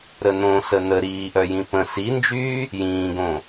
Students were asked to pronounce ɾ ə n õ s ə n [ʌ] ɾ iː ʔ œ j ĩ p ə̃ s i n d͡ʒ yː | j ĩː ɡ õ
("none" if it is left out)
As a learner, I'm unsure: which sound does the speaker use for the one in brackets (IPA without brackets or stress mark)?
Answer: ə